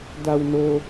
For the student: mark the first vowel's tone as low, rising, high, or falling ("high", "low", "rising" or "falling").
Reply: low